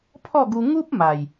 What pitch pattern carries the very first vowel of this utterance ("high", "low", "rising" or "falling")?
falling